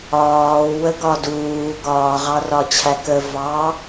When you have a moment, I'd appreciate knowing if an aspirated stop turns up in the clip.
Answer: yes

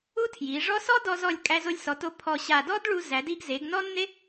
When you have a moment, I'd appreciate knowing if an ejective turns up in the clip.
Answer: yes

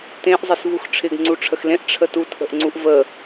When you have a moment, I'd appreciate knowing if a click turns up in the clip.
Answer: yes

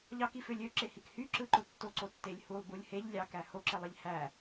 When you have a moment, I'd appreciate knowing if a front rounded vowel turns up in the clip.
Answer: yes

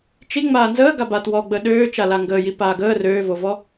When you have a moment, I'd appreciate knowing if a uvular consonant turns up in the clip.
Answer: no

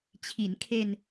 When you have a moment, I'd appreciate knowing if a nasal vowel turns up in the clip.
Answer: no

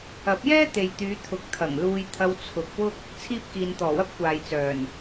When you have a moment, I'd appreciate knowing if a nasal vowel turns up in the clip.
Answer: no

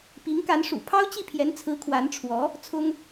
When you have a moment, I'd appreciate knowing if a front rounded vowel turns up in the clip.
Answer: no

